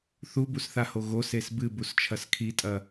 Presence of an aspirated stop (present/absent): present